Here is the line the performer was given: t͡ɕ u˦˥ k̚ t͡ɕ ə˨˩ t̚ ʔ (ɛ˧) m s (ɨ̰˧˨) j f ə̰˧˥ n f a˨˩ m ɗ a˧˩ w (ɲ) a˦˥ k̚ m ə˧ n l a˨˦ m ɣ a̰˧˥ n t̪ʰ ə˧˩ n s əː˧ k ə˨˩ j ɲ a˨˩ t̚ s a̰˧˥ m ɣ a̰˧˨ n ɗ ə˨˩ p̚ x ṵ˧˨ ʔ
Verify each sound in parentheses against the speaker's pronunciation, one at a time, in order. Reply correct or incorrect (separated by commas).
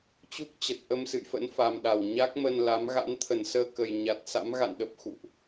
incorrect, correct, correct